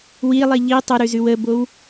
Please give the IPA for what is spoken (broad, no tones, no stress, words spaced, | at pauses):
wilˠi ʎi tˤəɾʉzʉw əbow